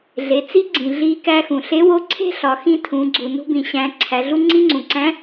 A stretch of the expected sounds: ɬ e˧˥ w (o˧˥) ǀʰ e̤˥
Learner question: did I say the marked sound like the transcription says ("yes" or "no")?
yes